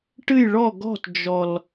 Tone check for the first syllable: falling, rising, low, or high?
falling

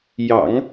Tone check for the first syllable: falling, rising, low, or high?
low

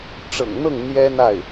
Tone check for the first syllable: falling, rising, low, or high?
low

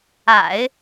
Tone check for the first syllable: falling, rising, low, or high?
low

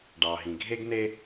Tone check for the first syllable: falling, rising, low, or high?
low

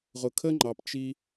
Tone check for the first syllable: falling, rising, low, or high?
low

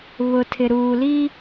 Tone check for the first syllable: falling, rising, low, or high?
low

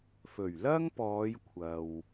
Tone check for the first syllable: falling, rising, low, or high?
low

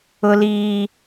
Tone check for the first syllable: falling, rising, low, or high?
high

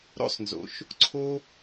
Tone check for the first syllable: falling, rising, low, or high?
high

